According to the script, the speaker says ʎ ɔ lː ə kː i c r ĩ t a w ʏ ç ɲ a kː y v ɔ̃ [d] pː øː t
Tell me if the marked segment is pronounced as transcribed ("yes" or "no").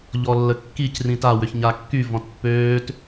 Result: no